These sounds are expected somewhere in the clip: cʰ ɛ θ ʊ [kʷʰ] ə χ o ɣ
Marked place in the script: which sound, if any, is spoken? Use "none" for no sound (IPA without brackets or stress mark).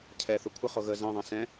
kʷʰ